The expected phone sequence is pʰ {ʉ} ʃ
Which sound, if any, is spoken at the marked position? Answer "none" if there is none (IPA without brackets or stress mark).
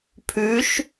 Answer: ʉ